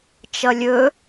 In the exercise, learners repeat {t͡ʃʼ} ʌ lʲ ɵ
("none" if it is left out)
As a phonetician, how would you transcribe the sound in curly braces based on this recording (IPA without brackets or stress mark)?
t͡ʃ